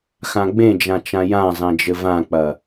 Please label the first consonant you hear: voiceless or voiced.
voiceless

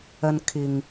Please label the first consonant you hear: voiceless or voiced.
voiced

